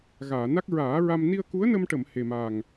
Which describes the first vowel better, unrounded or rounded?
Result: unrounded